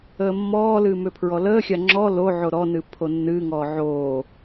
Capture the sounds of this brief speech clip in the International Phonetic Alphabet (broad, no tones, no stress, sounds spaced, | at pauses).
əː mː ɔː l ɨː m ʏ pʰ ɹ ɔ l əː xʲ a ŋ͡ǁ ɔ l o ʕ o ɾ ɔ n ɨ pʰ o nː ɨː ŋ ɔː ʕ oː